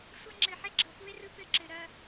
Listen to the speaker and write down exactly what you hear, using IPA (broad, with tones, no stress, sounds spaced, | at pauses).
sʷ ɐ˦ ŋ͡ǁ ɘ˨ ħ ɛ˦ ɡ͡ǁ ɤ˨ f u˦ e̯ r ɯ˦ p ɘ˦˨ ǁ ɘ˨ ɾ ɐ˦